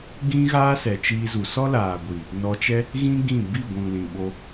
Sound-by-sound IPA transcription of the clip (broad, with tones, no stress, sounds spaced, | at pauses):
ɡ ĩ˦ ɣ aː˦ s ɛ˨ t͡ʃ iː˧ z u˨ s ɔ˦ l aː˨ ɡʷ i˨ | n ɔ˧ t͡ʃ ɛ˦ | ɣ ĩ˦ ɡ ĩ˦˨ b i˦˨ ɡʷ ũ˨ l ĩ˨ ɓ o˧